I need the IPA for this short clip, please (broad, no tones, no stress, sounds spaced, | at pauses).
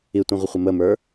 i tʷ ĩ ʁʷ ə χʷ ə m ə m ə˞